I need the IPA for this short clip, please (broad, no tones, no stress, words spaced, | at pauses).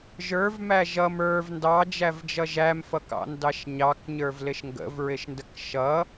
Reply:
ʒə˞vmæ ʒʌm ə˞v ndɑd͡ʒævd͡ʒʌ ʒæmfʌkɑ̰ndɑʃ ɲɑkɲə˞vlɪʃ ŋɡə̰vɹɪʃndək ʃʌ